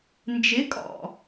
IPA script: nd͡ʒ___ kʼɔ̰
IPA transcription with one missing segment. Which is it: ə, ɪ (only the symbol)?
ɪ